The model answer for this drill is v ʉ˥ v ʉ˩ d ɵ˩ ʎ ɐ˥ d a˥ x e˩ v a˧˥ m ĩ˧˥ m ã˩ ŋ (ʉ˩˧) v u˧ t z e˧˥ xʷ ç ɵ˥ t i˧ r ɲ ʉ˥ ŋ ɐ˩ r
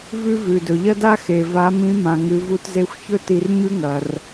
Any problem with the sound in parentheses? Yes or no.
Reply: yes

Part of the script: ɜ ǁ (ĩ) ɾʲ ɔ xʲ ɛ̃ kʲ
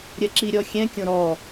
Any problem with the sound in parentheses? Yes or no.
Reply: yes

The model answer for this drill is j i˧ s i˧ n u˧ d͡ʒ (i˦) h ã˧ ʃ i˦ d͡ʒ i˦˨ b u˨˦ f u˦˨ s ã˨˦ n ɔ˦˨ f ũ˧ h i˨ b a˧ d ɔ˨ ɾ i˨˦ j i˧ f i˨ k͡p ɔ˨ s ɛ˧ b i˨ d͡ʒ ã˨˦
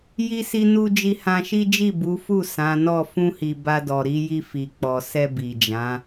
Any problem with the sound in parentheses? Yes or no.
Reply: yes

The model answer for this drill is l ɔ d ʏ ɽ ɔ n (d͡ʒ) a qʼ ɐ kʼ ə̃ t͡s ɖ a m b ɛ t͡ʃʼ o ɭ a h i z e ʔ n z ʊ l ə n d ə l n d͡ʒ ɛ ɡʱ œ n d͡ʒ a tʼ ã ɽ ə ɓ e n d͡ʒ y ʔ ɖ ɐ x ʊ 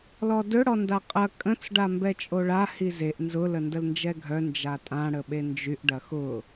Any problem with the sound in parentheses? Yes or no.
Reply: yes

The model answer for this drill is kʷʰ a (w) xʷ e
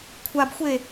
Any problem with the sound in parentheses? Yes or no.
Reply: yes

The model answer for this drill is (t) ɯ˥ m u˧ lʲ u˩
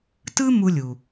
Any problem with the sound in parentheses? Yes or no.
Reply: no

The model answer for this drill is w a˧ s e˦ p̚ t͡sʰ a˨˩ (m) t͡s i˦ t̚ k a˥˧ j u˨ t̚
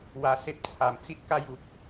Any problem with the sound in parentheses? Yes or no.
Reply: no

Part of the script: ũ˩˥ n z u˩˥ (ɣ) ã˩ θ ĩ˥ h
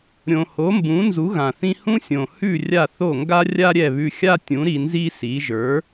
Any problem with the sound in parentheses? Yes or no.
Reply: no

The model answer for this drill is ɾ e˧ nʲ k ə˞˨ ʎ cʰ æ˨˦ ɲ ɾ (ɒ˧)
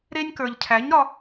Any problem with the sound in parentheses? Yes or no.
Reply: no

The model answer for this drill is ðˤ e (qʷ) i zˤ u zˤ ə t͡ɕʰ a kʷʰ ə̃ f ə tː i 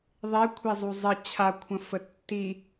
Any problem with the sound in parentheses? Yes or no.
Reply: yes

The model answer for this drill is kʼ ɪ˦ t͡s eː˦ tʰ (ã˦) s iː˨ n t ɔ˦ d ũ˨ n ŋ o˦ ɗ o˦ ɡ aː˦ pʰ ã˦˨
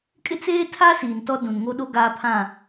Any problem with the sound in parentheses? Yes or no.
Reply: yes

